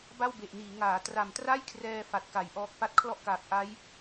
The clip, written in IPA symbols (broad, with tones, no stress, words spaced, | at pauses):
ba˥˩wbe˨˩ʔniː˩˦ŋaː˩˦ tra˨˩mtra˥˩jkʰrɛː˧ fa˨˩t̚ka˩˦jʔɔː˦˥k̚ pa˦˥t̚kʰlɔ˥˩ʔkaː˨˩k̚ ʔa˦˥j